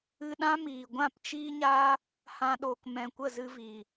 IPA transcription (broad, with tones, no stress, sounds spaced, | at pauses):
ɨ˧ ɗ ã˦ m iː˨ ɡʷ ã˦˨ p t͡ʃ iː˦ ɲ a˦ | h ã˧ ɗ oː˨ k m ɛ̃˨ kʷ ə˦˨ z ɨ˧ v i˨